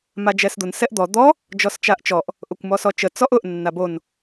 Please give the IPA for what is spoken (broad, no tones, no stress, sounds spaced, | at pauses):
m a d͡ʒ ɛ s d̪ ʊ n s ɛ ʔ d̪ ɔ d̪ ɔ | d͡ʒ ɔ s t͡ʃ a ʔ t͡ʃ ɔ ʔ | ʔ ʊ kʷ m ɔ s ɔ t͡ʃ ə t͡s ɔ ʔ ʊ ʔ nː a b o n